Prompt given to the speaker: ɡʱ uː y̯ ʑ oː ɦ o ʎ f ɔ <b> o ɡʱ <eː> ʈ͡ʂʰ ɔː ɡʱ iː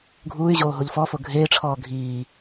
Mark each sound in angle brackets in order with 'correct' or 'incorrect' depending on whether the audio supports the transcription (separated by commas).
incorrect, correct